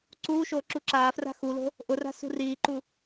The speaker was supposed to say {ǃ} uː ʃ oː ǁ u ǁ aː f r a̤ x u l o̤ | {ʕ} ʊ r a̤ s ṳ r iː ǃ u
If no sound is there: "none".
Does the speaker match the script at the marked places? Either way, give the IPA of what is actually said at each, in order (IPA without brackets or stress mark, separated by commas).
ǀ, ʔ